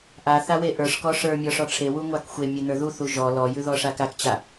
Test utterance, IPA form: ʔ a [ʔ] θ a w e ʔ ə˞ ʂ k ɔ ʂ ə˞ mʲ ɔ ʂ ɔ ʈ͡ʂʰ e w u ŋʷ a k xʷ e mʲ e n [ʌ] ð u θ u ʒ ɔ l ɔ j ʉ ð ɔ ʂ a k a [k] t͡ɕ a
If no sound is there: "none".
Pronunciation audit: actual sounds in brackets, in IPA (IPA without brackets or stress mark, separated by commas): none, ə˞, k